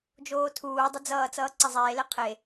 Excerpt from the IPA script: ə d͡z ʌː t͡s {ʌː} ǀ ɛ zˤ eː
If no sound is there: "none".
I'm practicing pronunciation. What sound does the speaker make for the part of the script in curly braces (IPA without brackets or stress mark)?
ʌː